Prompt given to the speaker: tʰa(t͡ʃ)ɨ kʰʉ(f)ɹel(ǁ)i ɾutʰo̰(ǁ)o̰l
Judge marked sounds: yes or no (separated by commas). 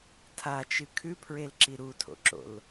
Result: yes, no, yes, yes